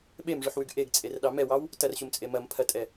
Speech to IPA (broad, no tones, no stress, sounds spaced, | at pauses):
ɓ e m ʐ ʉ ħ w ʉ ɡ ʔ e ɡ t͡sʼ e r ɗ ɑ m ɛ w ɑ w | t ɐ r ɕ u m t͡sʼ e m ɐ m pʰ ɐ tʼ ɛ